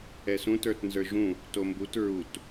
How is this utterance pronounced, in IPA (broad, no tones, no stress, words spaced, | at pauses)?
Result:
ɛsũt ə˞tnzə˞ʒũ | tombut ɹut